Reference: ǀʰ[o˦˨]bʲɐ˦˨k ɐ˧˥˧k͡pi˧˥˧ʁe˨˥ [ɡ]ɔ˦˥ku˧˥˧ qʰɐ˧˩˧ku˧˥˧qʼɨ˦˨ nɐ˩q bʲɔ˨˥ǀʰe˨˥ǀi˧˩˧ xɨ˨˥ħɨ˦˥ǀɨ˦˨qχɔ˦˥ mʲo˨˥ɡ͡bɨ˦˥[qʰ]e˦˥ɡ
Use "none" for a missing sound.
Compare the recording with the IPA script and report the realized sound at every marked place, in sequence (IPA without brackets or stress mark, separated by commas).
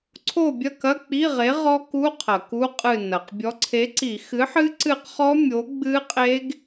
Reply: o˦˨, ʁ, qʼ